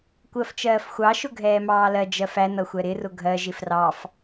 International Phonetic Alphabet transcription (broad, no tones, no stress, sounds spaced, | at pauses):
kʷ ɜ f t͡ʃ ɜː f xʷ ɑ ʃ ʊ ɡʱ ɛː m ɑː l ɜ d͡ʒ ɜ f æ n ʌ xʷ ɛ ɾ ɪ r ʊ ɡʱ ɜ ʒ ɪ f r ɑ f